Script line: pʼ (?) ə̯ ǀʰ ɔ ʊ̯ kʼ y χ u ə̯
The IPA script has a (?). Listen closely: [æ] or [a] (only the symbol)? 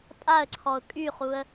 a